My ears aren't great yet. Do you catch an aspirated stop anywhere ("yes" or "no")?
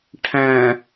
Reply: yes